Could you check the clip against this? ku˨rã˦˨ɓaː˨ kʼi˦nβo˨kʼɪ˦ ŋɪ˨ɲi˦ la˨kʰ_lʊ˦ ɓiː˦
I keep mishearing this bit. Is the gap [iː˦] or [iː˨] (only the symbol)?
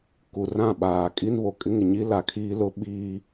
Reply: iː˦